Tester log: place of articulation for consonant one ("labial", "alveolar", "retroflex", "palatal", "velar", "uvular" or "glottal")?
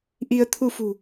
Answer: glottal